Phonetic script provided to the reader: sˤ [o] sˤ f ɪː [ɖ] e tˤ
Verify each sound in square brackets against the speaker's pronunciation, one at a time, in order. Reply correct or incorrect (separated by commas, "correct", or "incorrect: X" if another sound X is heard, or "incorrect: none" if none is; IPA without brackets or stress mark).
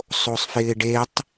correct, correct